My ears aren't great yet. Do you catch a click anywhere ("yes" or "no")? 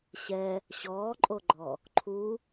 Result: yes